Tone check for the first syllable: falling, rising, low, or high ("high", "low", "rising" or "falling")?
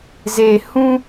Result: low